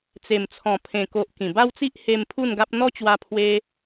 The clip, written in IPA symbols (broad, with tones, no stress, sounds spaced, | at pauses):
t͡s e˨˩ m t͡sʰ ɔ̃˨˩ pʰ ẽ˨˩ k o˨ ʔ k ĩ˨˩ b a˦ w t͡s i˦ ʔ h e˧ m pʰ u˥˧ n ɡ a˦ p̚ n̪ ɔ˦ t͡ɕ w a˧ pʰ w e˧